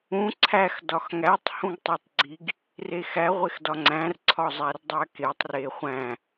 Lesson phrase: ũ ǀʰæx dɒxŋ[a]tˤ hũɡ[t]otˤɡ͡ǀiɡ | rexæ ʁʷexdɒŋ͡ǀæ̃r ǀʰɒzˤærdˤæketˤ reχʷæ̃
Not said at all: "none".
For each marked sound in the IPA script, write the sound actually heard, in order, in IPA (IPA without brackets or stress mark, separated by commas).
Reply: æ, tˤ